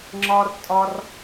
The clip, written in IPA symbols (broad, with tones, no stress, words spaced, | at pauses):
ŋ͡ǁɒ˧r tʼɒ˧r